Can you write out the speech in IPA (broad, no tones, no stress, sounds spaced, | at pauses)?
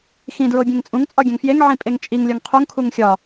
x ĩ d ɹ o bʲ ẽ ŋ t͡sʼ ũ ŋ t͡sʼ ɒ ɡʲ æ̃ ŋ f j e ŋ ʕ ĩ pʼ e ŋ t͡ʃʼ i ŋ lʲ ɒ ŋ qʰ u ŋ kʰ u ŋ xʲ ɒ